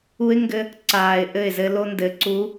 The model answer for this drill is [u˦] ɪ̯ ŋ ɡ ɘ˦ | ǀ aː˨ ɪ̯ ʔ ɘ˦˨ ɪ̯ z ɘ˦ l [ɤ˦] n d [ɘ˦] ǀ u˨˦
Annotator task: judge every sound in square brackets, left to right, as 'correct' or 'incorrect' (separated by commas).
correct, incorrect, incorrect